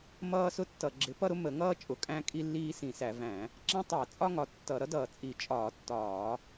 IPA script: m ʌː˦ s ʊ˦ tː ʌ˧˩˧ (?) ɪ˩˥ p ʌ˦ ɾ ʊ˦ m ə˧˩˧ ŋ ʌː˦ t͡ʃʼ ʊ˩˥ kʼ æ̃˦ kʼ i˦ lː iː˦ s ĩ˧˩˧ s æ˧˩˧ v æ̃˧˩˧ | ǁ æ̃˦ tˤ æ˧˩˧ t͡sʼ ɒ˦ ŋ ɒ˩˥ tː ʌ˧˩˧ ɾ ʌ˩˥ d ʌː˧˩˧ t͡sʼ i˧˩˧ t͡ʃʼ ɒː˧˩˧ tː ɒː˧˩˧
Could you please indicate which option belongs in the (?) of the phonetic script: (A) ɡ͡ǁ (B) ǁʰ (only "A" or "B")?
A